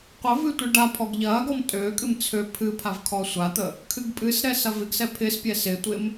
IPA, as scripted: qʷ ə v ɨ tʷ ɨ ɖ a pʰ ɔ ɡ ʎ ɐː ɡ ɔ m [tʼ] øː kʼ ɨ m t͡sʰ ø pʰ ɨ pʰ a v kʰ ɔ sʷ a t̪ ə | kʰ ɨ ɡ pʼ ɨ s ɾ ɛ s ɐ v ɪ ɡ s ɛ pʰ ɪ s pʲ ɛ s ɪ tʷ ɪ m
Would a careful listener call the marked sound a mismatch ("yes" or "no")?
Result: no